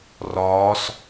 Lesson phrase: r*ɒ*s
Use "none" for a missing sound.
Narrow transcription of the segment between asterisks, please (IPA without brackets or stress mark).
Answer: ɒː